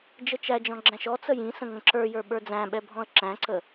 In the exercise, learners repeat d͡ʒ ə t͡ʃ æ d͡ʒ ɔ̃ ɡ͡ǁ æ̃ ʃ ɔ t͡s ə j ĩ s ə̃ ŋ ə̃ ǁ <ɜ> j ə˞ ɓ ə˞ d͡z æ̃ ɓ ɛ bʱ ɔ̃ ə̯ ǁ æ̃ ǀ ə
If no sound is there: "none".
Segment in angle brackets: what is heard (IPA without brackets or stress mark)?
ə˞